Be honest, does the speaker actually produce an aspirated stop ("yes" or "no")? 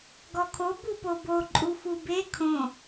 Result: yes